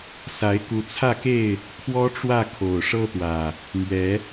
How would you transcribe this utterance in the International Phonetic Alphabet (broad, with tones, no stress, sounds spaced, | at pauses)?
s a˨˦ ɪ̯ k u˨˦ t͡sʰ ä˥˨ k e˥˨ ɪ̯ | kʰ w ɔ˦ ʈ͡ʂ w ä˥˨ kʰ o˨˩ ʊ̯ ʂ ɤ˦ t̪ w ä˨˩ | m ɥ ɛ˨˦